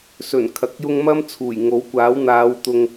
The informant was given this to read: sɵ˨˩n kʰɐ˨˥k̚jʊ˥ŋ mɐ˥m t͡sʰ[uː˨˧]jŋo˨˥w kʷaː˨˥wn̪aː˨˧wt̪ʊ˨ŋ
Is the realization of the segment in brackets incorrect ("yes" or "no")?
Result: yes